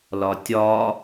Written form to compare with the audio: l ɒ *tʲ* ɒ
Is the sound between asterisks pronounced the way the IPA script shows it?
yes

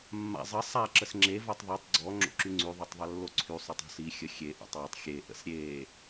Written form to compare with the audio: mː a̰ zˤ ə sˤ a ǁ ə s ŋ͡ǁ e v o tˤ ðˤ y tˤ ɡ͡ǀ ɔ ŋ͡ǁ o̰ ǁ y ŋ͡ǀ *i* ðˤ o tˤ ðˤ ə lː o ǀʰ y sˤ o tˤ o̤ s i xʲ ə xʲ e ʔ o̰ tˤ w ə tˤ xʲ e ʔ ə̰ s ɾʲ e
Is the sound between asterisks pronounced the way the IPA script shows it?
no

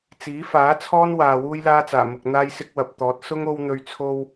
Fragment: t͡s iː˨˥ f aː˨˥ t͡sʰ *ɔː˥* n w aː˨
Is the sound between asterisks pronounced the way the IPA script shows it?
yes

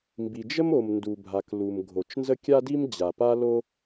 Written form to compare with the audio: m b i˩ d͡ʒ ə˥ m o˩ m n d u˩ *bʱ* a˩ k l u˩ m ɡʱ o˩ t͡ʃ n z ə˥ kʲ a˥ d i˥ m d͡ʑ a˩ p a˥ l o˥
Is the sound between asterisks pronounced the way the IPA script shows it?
yes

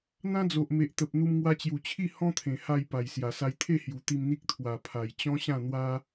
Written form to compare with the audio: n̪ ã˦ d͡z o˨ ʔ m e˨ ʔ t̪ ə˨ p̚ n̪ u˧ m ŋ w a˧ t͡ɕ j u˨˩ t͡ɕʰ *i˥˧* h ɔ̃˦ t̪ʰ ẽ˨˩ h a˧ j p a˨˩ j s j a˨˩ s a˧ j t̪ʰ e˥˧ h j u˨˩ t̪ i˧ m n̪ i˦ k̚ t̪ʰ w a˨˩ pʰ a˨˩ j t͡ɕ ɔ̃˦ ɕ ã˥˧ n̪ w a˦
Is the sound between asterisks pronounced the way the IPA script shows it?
yes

